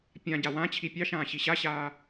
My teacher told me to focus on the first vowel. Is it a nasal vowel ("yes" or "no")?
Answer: yes